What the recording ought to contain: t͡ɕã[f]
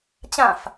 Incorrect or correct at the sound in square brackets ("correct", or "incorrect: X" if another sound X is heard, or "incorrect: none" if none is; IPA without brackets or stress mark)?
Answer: correct